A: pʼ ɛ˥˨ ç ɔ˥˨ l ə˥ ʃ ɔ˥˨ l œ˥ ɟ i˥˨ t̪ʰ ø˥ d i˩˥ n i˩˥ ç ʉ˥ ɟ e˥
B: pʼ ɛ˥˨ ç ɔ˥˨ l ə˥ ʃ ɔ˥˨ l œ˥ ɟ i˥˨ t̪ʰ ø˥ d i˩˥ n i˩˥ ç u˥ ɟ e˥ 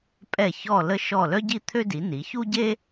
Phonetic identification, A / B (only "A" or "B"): B